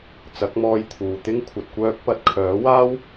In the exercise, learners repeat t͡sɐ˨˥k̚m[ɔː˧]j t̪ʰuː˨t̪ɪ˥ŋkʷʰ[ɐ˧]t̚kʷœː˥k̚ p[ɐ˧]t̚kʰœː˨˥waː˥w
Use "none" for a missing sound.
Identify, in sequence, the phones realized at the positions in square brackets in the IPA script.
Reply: ɔː˧, ɐ˧, ɐ˧

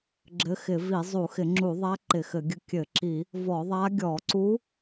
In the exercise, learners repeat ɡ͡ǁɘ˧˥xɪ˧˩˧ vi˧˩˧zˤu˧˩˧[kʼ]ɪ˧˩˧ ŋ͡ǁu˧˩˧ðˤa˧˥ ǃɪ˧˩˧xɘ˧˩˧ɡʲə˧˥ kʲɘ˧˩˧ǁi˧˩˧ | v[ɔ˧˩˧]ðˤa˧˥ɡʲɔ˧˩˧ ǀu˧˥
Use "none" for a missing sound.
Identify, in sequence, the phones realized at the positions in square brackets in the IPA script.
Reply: x, ɔ˧˩˧

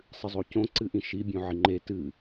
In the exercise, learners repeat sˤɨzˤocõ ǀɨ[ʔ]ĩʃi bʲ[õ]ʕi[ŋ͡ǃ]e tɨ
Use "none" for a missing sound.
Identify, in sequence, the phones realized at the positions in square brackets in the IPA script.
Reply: ʔ, õ, ŋ͡ǃ

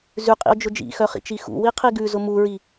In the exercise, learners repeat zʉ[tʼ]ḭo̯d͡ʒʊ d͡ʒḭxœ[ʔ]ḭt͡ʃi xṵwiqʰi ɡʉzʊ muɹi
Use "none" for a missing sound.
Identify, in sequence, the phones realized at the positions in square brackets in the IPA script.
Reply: qʼ, χ

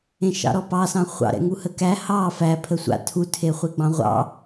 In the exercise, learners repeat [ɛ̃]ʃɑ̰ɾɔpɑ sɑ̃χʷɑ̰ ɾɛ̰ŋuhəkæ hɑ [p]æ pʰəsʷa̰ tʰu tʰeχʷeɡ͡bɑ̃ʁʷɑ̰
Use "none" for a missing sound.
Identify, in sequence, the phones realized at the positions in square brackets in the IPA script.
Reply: ẽ, f

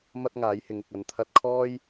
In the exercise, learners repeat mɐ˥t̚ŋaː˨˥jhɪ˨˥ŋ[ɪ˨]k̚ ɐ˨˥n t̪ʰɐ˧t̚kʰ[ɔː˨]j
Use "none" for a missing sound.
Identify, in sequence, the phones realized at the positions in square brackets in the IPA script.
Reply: ɪ˨, ɔː˥

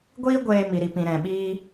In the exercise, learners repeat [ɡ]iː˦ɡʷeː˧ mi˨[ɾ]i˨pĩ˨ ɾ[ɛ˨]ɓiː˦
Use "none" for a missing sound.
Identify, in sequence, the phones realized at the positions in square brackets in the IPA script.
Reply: ɡʷ, ɾ, ɛ̃˨

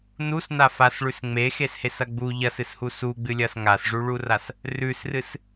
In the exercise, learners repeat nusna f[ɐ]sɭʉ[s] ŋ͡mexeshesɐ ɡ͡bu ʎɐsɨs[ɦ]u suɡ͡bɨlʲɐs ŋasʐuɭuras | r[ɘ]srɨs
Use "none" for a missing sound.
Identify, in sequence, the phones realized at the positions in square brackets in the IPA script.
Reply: a, s, h, ʉ

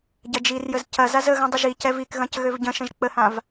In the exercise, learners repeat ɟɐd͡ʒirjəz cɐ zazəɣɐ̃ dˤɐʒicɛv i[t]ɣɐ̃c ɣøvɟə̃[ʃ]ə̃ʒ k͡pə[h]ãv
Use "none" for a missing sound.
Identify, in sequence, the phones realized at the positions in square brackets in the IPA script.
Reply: k, ʃ, h

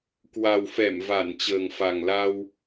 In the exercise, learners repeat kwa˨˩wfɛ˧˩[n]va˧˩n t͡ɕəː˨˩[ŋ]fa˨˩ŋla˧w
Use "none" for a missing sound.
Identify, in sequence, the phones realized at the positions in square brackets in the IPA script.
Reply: m, ŋ

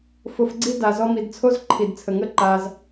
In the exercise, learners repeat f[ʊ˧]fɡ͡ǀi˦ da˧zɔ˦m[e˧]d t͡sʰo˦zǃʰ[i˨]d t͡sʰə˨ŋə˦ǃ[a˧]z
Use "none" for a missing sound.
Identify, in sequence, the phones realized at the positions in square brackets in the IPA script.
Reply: ʊ˧, i˧, i˨, a˧

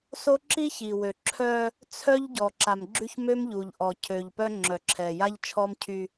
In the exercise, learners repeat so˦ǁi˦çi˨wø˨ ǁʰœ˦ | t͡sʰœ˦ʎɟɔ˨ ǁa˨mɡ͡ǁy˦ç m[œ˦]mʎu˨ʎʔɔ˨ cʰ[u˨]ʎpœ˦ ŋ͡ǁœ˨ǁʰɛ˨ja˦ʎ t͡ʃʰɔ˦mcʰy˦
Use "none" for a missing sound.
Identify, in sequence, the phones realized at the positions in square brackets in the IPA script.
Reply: ø˦, ø˨

